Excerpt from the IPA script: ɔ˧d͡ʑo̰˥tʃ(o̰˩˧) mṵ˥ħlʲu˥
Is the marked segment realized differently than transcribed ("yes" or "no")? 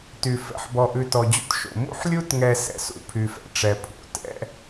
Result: no